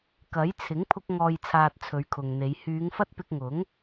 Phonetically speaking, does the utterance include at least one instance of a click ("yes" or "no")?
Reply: no